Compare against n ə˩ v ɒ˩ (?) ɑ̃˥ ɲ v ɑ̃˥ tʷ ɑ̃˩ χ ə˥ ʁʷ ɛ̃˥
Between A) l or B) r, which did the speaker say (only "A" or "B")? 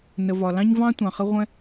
A